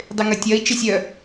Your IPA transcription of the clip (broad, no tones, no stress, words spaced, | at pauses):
dˤɪŋɐtʲɐi̯ t͡ʃesʲœ